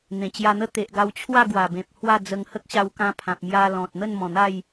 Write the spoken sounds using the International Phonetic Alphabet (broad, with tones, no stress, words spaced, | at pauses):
n̪ẽ˨˩t͡ɕja˧n̪ə˦ t̪e˨ʔɡa˧wt͡ɕʰwa˥˧ ɡwa˨˩bẽ˨p̚ hwa˥˧ d͡zə˧ŋhə˦k̚ɕa˧wkã˧ pʰã˨p̚mja˧ lɔ̃˨t̚n̪ə˥˧nmɔ̃˨˩n̪a˥˧j